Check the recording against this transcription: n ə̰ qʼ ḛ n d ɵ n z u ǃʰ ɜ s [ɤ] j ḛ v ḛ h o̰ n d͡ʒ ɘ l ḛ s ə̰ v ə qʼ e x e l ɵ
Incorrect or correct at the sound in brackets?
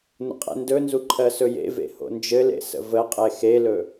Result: incorrect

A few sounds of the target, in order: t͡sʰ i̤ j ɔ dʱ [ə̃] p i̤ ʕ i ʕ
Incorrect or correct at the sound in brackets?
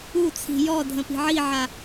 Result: correct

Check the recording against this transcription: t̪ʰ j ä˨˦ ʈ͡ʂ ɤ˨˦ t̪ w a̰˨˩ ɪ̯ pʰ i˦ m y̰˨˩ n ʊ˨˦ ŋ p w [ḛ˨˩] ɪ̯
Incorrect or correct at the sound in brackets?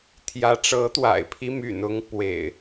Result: correct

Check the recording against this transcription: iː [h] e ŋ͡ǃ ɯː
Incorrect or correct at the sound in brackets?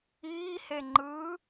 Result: correct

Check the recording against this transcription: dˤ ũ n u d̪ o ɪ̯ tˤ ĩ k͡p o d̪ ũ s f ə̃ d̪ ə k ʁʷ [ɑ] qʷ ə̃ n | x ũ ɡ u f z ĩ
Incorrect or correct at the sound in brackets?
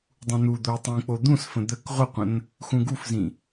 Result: incorrect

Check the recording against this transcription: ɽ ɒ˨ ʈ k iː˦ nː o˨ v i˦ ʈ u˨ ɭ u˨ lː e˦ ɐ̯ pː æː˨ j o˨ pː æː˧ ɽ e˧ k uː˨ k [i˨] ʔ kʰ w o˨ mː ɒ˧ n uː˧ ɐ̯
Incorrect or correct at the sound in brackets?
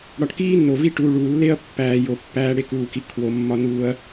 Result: correct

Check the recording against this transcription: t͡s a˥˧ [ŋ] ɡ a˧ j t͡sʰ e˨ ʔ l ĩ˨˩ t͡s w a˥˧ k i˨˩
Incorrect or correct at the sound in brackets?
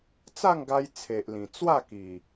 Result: correct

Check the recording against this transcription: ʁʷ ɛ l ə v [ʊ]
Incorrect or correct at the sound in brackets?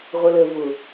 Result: correct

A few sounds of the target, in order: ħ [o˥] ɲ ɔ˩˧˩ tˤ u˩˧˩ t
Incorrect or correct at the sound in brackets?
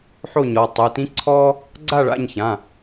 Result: incorrect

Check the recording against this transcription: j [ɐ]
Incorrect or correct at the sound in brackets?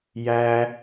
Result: incorrect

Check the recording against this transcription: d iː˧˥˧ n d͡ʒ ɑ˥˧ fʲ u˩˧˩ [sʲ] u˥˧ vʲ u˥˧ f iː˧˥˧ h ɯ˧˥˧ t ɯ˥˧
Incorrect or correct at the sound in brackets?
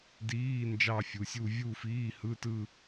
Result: correct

